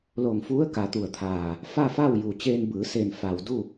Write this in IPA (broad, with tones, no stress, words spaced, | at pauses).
lo˧˩ŋfu˧˥ə̯ ka˩˧t̪u˧˩ə̯t̪ʰaː˧˩ | fa˥˨faː˥˨w juː˩t͡ɕeː˧nbɯː˩˧seː˧˩n fa˩w du˥˨